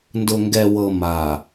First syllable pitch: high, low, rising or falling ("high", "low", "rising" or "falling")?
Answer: low